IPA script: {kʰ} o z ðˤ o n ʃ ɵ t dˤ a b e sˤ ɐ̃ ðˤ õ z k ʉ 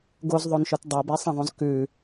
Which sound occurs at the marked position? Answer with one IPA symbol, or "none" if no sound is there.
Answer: ɡ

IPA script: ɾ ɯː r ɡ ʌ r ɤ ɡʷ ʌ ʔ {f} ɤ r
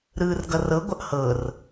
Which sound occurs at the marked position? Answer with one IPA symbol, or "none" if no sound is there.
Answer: h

